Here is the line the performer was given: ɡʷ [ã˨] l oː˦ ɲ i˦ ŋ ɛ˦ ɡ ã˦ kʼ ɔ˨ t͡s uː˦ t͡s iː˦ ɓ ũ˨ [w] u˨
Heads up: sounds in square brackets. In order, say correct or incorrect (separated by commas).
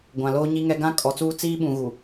correct, incorrect